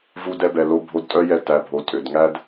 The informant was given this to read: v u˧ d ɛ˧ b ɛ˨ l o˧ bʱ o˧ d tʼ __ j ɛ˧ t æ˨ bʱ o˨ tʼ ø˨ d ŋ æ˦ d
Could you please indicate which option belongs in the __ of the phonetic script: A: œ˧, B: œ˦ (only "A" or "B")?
B